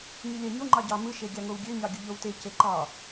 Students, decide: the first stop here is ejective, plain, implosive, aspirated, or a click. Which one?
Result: click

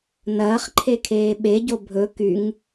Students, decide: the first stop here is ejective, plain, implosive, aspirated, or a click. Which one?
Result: click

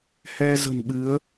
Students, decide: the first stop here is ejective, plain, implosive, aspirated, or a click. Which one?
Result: implosive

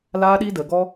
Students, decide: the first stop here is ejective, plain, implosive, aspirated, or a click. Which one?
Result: implosive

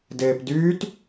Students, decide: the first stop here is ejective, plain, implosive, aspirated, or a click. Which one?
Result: plain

